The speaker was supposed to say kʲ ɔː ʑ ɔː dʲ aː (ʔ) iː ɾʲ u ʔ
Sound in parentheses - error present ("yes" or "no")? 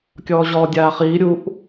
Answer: yes